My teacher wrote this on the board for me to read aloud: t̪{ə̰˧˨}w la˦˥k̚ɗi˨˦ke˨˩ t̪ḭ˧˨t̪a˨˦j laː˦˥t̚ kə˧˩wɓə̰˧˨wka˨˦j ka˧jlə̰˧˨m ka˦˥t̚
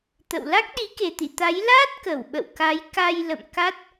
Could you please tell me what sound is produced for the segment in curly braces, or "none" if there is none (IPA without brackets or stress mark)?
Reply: ə̰˧˨